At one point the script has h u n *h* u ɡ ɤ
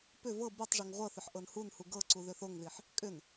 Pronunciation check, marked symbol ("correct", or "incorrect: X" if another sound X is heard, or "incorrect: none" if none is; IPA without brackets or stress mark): correct